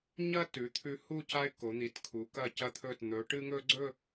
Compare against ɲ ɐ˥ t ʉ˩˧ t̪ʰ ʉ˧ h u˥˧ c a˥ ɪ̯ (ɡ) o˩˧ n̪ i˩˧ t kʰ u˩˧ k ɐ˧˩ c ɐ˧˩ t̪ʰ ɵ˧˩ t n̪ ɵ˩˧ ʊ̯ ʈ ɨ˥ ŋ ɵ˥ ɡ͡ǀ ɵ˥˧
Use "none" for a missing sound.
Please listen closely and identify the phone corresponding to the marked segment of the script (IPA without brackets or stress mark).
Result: k